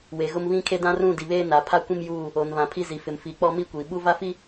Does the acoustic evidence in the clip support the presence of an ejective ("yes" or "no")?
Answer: no